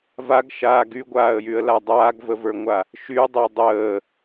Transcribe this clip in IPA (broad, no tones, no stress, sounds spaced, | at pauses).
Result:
v a ɡ ʃ aː ɡ y ɡʷ aː ə̯ j y ə̯ l a dˤ aː ɡ v ə v ə˞ ŋʷ a | ʃ y dˤ e dˤ əː